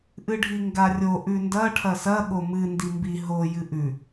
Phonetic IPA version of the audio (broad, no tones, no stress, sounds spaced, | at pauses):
ʔ ɨ ɖʱ i ŋ ɡ a rʲ o ʔ ʉ n d ɐ ʈʰ ɐ s ɐ ɠ o m ɨ n d i m b i ɦ o j ɨ ʔ ʉ